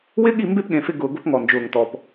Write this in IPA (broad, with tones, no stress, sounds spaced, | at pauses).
w ɪ˦ ɠ i˦˨ m b e˦ p ɠ ẽ˨ f ɪ˦ ɡ ʊː˨ ɡ o˦ p ŋ ɔ˨ n d͡ʒ ʊː˨ ŋ t ɔ˨ p